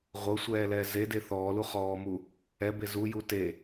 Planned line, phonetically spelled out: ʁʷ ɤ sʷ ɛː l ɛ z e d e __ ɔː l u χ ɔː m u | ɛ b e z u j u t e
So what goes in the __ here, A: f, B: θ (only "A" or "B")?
B